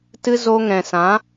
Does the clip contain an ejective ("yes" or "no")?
no